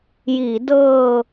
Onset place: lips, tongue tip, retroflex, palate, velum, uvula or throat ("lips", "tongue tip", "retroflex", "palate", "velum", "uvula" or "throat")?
palate